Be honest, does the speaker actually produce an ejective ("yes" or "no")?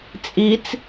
yes